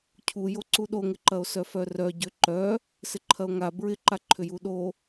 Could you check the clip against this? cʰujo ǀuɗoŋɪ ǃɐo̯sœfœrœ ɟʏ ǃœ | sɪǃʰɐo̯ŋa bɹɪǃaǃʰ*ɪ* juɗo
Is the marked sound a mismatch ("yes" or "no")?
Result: yes